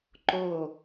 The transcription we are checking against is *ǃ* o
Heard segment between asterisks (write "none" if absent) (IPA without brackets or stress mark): ǃ